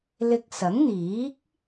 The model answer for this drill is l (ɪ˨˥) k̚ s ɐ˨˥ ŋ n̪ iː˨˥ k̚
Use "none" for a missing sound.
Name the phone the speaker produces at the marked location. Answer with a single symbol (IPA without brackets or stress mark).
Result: ɪ˧